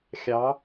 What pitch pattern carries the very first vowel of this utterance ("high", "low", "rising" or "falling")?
rising